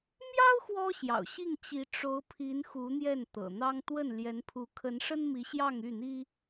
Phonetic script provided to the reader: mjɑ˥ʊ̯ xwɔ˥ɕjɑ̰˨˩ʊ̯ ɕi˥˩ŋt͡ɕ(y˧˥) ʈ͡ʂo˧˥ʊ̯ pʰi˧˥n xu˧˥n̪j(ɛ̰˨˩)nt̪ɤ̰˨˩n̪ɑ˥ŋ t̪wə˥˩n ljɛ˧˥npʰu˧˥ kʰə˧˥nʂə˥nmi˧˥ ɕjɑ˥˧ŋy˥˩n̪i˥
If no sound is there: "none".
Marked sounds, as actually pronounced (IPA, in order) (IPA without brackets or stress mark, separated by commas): i˧˥, ɛ˥˩